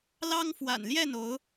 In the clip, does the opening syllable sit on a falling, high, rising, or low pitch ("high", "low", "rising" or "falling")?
high